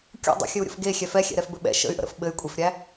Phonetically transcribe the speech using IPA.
kʲ ṵ dˤ ə̰ xʲ ɘ u̯ ɾʲ ə̰ f ɡ e xʲ ɛ f ɛ xʲ ɛ̰ ɾ ɛ f b ɘ ɓ ɛ̰ ʃ ə̰ y̯ ʔ ə̰ ɾ ə̰ f ɓ ɘ y̯ kʷʼ e f ɾʲ æ

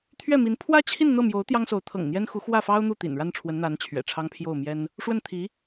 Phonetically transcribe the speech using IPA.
t̪ʰ ɥ ɛ˥˩ m i˧˥ n pʰ w ä˥ t͡ɕʰ i˥˧ n n̪ ɤ˥˩ m j o˧˥ ʊ̯ t̪ j ɑ˥ ŋ s o˧˥ ʊ̯ t̪ʰ ɤ̰˨˩ ŋ n̪ j ɛ˥ n x u˧˥ x w ä˥˩ f ɑ˥ ʊ̯ n̪ u˥˩ t̪ ḭ˨˩ n ɻ a˥˩ n ʈ͡ʂʰ w ə˧˥ n n̪ a˧˥ n t͡ɕʰ ɥ ɛ̰˨˩ ʈ͡ʂʰ ɑ˥ ŋ pʰ j o˥˩ ʊ̯ m j ɛ˥ n | ʂ w ə˥˩ n t̪ʰ i˧˥

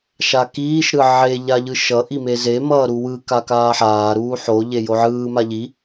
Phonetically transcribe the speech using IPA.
ʃ a k iː ʃ ɾ ɯ ʕ e ʎ a ʎ ɯ ʃ ʌ ʔ i m e z e m ʌː ɾ u w ɯ k a k aː ħ aː ɾ uː ħ o ʎ e j o ʕ ɯː m a ʎ i

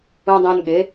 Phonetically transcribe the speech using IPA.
ũ˧ dˤ õ˧ n ɠ e˨˦

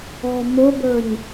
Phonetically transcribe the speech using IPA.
ɔ m ʊ b ə˞ ɲ

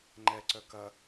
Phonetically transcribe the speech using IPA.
ŋ͡ǃ ɛ ǀ œ k ɐ

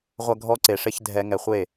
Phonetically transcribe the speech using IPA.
ʁʷ ɐ˧ ɡʱ ɔ˧ ǀ e˨ ʂ e˧ ç dʱ ɛ˧ ŋ ɛ˨ χʷ e˦˨

